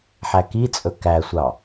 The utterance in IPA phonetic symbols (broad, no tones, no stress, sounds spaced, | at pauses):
ħ æ k i t͡sʼ ɵ k æ sʷ ɑ